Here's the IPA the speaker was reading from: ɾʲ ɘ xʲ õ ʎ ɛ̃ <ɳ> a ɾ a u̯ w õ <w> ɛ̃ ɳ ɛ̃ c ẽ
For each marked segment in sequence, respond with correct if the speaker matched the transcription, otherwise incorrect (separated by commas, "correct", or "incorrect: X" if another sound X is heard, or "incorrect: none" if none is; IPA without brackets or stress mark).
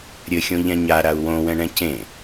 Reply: incorrect: ɲ, correct